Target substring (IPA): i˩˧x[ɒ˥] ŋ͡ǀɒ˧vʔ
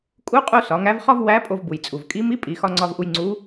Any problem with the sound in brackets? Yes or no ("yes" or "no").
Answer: yes